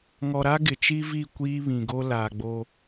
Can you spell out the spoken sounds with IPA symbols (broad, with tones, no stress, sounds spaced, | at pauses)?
ŋ ɔ˨ ɾ a˦ ɡ ɪ˨ t͡ʃ i˦ v i˦˨ kʷ iː˦ β ĩ˨ ɡ o˦ l aː˨ ɡ͡b o˦